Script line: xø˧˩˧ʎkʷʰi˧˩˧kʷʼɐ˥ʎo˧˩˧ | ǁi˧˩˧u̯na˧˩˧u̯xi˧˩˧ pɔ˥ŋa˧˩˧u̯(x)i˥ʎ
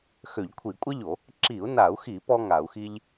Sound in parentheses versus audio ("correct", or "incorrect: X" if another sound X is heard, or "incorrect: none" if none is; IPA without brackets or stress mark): correct